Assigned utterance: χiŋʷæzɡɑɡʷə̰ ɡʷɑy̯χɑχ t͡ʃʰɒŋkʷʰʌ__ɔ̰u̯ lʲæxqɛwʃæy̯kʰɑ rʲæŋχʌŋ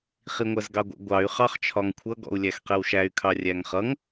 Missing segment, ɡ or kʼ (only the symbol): ɡ